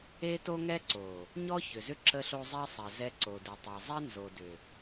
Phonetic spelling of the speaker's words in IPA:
e˦ t o˦ ŋ ɛ˦ ǀ o˨ | ɲ ɔ˦ ç ʏ˨ z ʏ˦ ǁ ə˦ ɬ o˦ zˤ e˦ sˤ ɛ˨ z ɛ˦ ǀ o˨ d ʏ˨ tˤ ɛ˨ zˤ ɛ˦ n z o˨ d ʏ˨

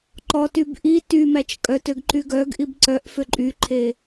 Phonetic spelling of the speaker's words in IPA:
ǃ ɔ t y b ʔ i t y m æ t͡ʃ kʼ œ t ø ɡ ǃ y ɡ œ ɡ ʔ i b ǀ œ ʔ f ø ǃʼ y ǃʰ e

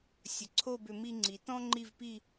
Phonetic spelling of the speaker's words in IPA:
sʲ ə˩˧ ǀʰ o˥˧ b ʏ˧ m i˧ ŋ͡ǀ i˩˧ t ɔ̃˥ ŋ͡ǃ i˥˧ v p i˥˧

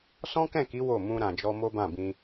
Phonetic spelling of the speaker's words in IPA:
s ɔ̃˦ k ɛ̃˦˨ k i˨˦ w o˦˨ m ũ˧ ɾ ã˨ d͡ʒ ɔ˧ m o˦ b ã˦˨ b ĩ˧

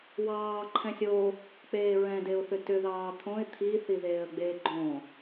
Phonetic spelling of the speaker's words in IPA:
w ɑː ǃʰ ɛ̃ sʲ o | k͡p eː ɹ ɛ̃ d e ʊ̯ θ ʏ t ʏ ð ɑː t̪ʰ õ ɪ̯ t̪ʰ i θ i ð eː ə̯ ɡ͡b eː ɡ͡ǃ õ

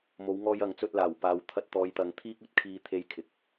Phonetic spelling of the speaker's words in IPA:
m o˨˧ w ŋ ɔː˧ j ɐ˨˥ ŋ t͡s ɵ˧ t̚ l aː˨˩ w p aː˨ w t̪ʰ ɐ˧ t̚ t̪ ɔː˨˧ j t̪ ɐ˨˧ ŋ t̪ʰ iː˥ k̚ ɵ˨ t̚ kʰ iː˧ t̪ʰ e˧ j kʰ ɪ˨ k̚

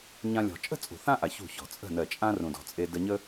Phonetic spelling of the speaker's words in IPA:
ɲ ã˧ lʲ ɔ̤˨ t͡ʃʼ ə̤˦ t͡sʼ ṳ˨ θ ã˦ ʔ a˨ ç ṳ˦˨ ç ɔ̤˨ t͡sʼ ə̤˦˨ n ɜ˨ t͡ʃʼ ã˦ r ũ˨ d ɔ̤˨ t͡sʼ e˧ d ə˧ ɲ ə˦

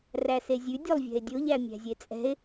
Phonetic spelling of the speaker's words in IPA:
r æ s e zʲ ʉ dʲ o lˠ vʲ ɛ̤ e̯ dʲ o ʎ æ mʲ æ̤ zʲ e t͡sʼ ɛ̤ e̯

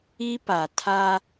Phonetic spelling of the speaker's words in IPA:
i˦ p a˨ tʰ a˦

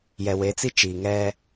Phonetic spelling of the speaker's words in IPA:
j ɛ˨ w e˨˦ t͡s i˦ t͡ʃ iː˨ ŋ ɛ˦

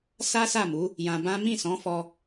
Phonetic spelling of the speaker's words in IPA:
s a˦ s a˦˨ m u˨˦ | j ã˧ b ã˦ m ĩ˦˨ s ɔ̃˨˦ f ɔ˧

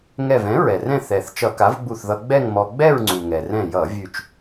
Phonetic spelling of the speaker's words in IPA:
ŋ ɛ˧˩ v ɛ̃˩˥ ɹ ɛ˩ r ɛ̃˥˧ θ ɛ˩ θ t͡ʃ ʌ˧˩˧ k a˩˥ v ɡ͡b u˧˩ θ ð ʌ˧ ɡ͡b ɛ˥˧ ŋ m ɔ˧ ɡ͡b ɛ˥˧ ɹ ŋ͡ǀ u˩ ŋ ɛ˩ r ɛ̃˧˩ j ʌ˧˩˧ vʲ ʉ˧˩ t͡ʃ

